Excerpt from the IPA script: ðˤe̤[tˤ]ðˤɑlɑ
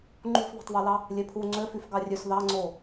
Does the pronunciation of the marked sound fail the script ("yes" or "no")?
no